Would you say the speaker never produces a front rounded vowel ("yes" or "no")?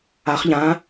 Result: yes